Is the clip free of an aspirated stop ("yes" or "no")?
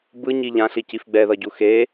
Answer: yes